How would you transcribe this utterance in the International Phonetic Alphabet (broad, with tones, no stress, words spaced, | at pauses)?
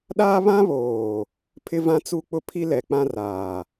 ɗaː˦βã˦βoː˨ | pʰɪ˦vã˦t͡su˦k͡pʊ˦ pʰi˦lɛ˨k͡pã˦ raː˨